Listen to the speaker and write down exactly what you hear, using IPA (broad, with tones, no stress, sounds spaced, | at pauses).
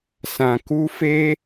s ã˨ k u˧ f e˦